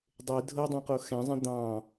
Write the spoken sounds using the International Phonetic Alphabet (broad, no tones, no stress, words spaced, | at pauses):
dˤe dʱɤdˤɛ̃qo xɛ̃zˤɛ̃ d̪ɑ̃